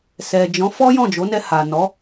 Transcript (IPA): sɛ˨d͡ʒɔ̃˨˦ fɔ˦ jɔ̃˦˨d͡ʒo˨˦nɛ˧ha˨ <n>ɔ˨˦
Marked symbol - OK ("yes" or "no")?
yes